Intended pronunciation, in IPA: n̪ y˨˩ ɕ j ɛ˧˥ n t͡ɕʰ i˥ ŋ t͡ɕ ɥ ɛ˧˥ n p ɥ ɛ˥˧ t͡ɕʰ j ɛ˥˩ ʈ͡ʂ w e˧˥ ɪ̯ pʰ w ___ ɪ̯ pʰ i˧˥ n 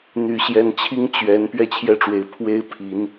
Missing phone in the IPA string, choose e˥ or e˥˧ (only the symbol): e˥